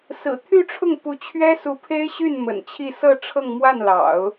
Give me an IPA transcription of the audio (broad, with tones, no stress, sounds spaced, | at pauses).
s ɹ̩˨˩ t̪ʰ y˥˧ ʈ͡ʂʰ ʊ˥˩ ŋ p u˧˥ t͡ɕʰ ɥ ɛ˥ s u˧˥ pʰ e˥ ɪ̯ ɕ y˥˩ n m ə̰˨˩ n t͡ɕʰ i˥˧ s ɤ˥˧ ʈ͡ʂʰ ɤ˥˧ ŋ m w a˥˩ n l ɑ̰˨˩˦ ʊ̯